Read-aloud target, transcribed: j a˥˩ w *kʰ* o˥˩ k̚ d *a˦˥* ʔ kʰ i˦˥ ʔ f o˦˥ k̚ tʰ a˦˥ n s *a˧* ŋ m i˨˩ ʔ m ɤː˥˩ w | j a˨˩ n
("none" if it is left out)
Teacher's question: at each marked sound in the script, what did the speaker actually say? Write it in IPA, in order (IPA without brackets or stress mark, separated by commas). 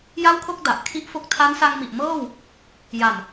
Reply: kʰ, a˨˩, a˧